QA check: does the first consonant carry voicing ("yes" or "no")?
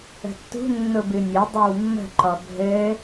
no